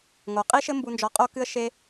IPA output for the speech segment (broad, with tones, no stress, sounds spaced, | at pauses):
ŋ o˨ qʼ i˦ ʃ ɘ˦ m b u˧ n d͡ʒ ɔ˧ qʼ o˦ k ɨ˦ ə̯ ʃ e˦